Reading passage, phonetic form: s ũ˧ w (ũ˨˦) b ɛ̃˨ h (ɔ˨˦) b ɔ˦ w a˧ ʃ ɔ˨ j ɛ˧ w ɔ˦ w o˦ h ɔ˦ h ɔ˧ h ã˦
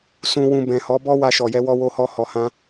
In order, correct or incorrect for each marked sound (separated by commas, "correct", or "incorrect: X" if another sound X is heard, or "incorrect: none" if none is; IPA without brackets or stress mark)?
incorrect: ũ˧, correct